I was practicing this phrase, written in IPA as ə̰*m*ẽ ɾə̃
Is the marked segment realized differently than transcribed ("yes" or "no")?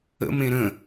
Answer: no